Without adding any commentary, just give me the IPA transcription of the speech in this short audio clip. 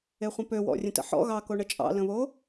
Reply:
e χʷ ə̃ p ø w ɔ̰ rʲ ə̃ t ə̰ ħ ɔ̰ ɣ ɑ k o ɳ ə t͡ʃʼ ɑ̰ l ə̃ β o

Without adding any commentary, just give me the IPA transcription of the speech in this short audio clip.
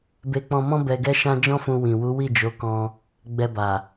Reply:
b e˧ k͡p ɔ̃˧ m ɔ̃˦ b ɛ˧ ɡ ɛ˦ ʃ ã˦ d͡ʒ ɔ̃˦ f ũ˧ w ĩ˨ w u˨˦ w i˦˨ d͡ʒ o˨˦ k ɔ̃˧ | ɡ͡b ɛ˧ b a˨

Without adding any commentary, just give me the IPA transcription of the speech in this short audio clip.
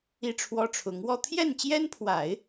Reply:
i˥˩ ʈ͡ʂʰ w ɔ˥ ʈ͡ʂʰ ʊ˧˥ ŋ w ɔ˥˧ t̪ʰ j ɛ˥˩ n t͡ɕ j ɛ˥ n pʰ w a˨˩˦ ɪ̯

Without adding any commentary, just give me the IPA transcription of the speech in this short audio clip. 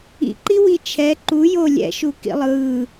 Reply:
ḭ ǃ i w i t͡ʃʰ ɛ ǃ u j o lʲ ɛ̰ ʃ u k ḭ lˠ ɯː

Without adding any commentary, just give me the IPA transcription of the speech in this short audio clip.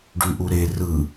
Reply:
ɖ y ʔ u ɾ e r ɯ

